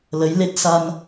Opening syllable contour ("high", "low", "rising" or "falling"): rising